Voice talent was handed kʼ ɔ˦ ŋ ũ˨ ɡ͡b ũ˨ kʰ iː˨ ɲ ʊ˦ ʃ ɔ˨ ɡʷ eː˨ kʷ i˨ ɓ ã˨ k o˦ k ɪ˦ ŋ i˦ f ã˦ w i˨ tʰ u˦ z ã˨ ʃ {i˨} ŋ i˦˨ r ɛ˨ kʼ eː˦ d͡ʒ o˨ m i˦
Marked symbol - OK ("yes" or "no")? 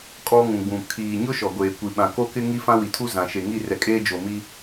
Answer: no